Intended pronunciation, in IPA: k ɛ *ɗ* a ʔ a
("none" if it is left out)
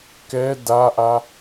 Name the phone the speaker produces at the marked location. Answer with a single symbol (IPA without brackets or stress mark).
d